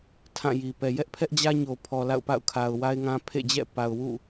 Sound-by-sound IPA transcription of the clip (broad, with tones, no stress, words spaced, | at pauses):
tʰã˦˨ji˨ pɛ˨jɛ˦ʔpʰɛ˦ʔd͡ʑä˦ ɲo˨pʰɔ˨ la̰˦˨ʊ̯pa̰˦˨ʊ̯kʰa˨ʊ̯ wa˦ɪ̯ŋã˦ pʰḛ˦˨d͡ʑɛ̰˦˨ pa˨ʊ̯wṵ˦˨